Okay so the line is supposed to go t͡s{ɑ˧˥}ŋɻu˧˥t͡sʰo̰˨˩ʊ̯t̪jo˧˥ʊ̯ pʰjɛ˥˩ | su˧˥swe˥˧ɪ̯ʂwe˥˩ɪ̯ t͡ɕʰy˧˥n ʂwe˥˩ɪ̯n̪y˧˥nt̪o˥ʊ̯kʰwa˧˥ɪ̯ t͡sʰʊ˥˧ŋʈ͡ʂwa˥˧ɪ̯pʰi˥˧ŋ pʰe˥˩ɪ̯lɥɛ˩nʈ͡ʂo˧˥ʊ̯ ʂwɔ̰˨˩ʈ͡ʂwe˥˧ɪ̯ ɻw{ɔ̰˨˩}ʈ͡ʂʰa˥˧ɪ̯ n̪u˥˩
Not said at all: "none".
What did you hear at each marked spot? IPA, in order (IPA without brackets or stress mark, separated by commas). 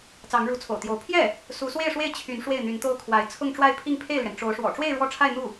ɑ˧˥, ɔ˥˧